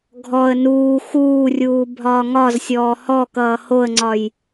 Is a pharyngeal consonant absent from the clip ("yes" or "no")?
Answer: yes